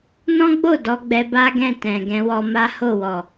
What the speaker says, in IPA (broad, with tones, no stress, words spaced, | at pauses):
nɔ̃˦ɡ͡bo˦˨ dɔ˧ɡ͡bɛ˧ ba˦ɡɛ̃˦˨tɛ̃˨ɡɛ̃˧ wɔ˧ma˦ ho˦˨wɔ˨